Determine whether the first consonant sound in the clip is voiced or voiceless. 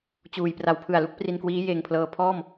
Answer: voiceless